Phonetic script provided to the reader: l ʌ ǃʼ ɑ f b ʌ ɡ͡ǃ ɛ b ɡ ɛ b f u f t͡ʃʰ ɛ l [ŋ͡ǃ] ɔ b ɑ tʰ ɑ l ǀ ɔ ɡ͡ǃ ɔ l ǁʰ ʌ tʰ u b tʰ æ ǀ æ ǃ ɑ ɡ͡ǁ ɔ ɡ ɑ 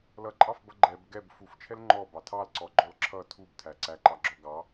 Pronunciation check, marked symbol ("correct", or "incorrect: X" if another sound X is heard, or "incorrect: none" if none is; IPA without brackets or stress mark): correct